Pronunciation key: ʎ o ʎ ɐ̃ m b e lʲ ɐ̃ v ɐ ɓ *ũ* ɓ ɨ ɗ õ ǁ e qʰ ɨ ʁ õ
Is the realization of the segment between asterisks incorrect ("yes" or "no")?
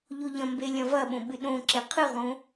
yes